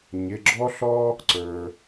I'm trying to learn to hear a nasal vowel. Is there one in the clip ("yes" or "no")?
no